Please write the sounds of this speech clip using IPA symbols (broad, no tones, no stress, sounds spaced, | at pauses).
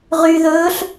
ʁ y ð ɵː ɬ